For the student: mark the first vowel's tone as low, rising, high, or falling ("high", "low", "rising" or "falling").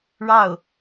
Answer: falling